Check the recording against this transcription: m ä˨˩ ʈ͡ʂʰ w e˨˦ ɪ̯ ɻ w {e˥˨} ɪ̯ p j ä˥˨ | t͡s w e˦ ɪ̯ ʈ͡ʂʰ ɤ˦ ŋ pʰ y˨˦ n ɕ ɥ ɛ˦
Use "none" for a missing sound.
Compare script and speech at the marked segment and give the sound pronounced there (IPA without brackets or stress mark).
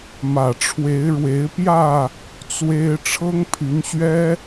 e˨˦